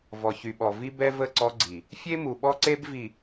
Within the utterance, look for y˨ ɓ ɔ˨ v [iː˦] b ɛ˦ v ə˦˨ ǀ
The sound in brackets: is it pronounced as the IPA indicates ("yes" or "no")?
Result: no